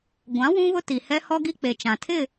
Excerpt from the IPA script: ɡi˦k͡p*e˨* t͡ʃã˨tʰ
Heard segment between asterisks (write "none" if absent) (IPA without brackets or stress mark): e˨